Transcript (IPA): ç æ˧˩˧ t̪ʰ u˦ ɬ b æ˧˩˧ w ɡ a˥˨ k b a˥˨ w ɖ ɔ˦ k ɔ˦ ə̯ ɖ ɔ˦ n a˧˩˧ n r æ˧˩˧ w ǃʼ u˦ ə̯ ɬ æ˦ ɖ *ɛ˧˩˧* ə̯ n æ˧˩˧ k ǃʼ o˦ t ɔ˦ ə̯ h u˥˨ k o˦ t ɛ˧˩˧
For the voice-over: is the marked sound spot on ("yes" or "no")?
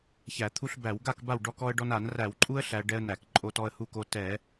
no